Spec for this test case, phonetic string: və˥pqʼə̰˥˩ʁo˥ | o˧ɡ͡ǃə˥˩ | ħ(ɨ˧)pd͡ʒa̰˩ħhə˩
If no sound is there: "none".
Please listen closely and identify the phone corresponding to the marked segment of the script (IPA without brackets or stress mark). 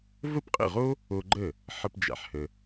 ə˧